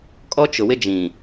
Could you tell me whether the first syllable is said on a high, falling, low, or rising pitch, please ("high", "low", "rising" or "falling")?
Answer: high